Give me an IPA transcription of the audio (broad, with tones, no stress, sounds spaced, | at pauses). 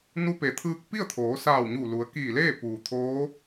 n u˧ p e˩˧ t̪ʰ ɯː˧ k̚ p i˥˨ ə̯ t̪ʰ oː˩˧ s aː˧˩ w ɲ uː˧˩ l u˩˧ ə̯ k iː˧˩ l eː˥˨ p uː˩ t̪ʰ oː˧˥